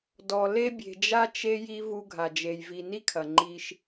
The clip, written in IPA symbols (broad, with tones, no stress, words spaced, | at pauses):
dɔ˨ le˦ bʲe̤˨d͡ʒa˦ t͡ʃe˦ji˦ vu˦ɡʱa˨d͡ʒe˨j vi˨ni˦ kʰɐ˨ŋ͡ǃi˦ʃ